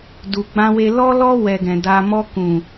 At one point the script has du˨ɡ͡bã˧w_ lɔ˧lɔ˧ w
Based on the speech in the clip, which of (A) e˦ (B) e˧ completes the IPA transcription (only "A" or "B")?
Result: B